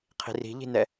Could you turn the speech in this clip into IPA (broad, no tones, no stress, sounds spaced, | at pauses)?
qʰ i̤ r i̤ ʎ i̤ n ɛ